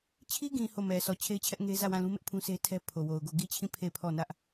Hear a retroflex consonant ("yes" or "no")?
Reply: no